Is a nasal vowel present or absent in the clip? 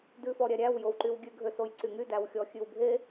absent